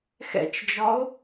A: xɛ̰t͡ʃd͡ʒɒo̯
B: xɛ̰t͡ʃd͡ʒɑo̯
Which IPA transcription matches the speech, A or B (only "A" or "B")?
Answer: A